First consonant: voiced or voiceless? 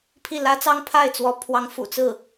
voiceless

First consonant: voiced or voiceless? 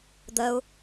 voiced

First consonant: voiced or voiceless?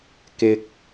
voiceless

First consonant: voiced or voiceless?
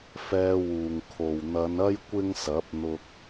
voiceless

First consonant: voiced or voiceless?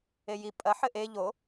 voiced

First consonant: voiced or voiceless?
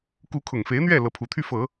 voiceless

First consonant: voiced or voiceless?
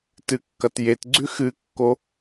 voiceless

